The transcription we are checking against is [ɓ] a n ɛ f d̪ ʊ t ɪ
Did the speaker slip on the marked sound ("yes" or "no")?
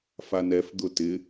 yes